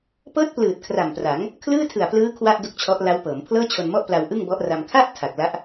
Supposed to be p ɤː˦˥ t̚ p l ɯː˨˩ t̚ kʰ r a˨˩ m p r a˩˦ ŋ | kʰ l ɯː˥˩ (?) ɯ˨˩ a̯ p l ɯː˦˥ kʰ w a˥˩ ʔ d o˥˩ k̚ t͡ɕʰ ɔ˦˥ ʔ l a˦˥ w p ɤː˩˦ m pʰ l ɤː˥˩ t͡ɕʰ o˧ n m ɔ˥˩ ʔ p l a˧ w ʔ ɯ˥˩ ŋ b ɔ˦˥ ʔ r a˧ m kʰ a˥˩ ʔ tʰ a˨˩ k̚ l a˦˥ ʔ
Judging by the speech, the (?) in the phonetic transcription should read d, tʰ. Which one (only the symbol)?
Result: tʰ